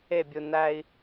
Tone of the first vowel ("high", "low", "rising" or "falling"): falling